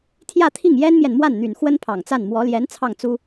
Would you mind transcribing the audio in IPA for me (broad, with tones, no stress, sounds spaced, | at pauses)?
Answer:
t̪ʰ j ä˥˧ t̪ʰ i˥˩ ŋ j ɛ˥ n m j ɛ˨ n m w a˥˩ n n̪ y˨˩ n x w ə˥ n pʰ ɑ˨˩ ŋ t͡s a˥˩ n m w ɔ˧˥ l j ɛ˧˥ n t͡sʰ ɑ˥˩ ŋ t͡s u˥